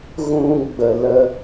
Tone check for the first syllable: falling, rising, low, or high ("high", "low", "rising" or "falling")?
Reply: high